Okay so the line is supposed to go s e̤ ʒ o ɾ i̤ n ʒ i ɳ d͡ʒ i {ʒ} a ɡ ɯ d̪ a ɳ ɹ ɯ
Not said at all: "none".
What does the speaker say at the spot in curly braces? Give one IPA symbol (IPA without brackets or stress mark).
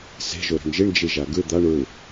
ʒ